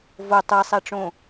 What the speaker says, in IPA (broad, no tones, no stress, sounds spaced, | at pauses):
v o tˤ ɛ sˤ ɛ ʈ͡ʂ õ